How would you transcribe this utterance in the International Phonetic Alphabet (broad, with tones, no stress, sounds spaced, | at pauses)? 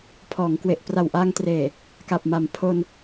pʰ ɔː˩˦ ŋ k w e˨˩ ʔ p r a˨˩ w ʔ a˧ ŋ t r eː˨˩ | k a˨˩ p̚ m a˩˦ m pʰ o˧ n